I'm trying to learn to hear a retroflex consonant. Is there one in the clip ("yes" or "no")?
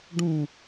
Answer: yes